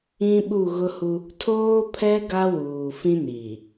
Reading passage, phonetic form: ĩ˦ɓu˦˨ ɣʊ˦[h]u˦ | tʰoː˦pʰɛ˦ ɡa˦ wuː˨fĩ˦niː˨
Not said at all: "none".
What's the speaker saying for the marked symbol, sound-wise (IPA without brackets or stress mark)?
h